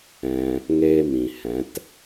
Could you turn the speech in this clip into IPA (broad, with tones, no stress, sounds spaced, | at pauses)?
ɛ̃˧ | ŋ eː˦ m ĩ˨ h ɛ̃˨˦ t